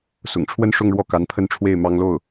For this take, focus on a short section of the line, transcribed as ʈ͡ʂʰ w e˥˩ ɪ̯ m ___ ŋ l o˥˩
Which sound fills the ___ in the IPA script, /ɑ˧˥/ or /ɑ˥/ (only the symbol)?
ɑ˥